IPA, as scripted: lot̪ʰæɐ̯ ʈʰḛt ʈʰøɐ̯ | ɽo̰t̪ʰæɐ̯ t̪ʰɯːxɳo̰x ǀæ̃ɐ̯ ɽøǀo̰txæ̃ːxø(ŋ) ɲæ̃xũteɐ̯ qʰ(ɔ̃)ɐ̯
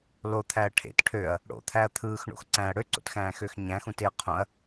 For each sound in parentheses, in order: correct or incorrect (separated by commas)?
incorrect, incorrect